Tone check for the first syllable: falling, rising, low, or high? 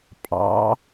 rising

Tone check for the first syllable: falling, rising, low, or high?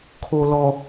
low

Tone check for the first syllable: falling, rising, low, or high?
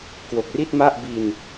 low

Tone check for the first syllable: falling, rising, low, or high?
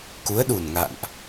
rising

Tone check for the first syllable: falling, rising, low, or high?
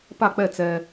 falling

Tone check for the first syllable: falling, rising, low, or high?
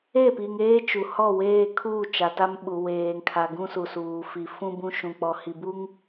falling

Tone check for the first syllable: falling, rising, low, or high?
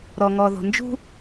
low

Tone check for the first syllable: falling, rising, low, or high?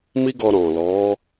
high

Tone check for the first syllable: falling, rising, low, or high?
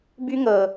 high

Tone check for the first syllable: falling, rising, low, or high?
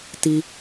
high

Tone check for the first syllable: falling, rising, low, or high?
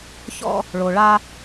high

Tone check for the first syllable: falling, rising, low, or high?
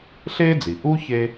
high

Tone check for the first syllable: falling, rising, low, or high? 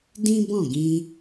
high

